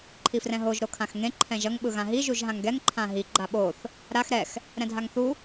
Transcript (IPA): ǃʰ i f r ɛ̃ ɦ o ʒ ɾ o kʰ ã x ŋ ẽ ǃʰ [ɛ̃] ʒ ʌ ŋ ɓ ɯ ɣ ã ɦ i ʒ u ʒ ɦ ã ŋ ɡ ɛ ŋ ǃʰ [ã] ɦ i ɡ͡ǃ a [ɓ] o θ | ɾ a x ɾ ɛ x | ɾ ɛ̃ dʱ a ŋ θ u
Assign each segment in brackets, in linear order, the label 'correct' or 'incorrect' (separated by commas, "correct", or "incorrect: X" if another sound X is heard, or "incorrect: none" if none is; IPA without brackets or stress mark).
correct, correct, correct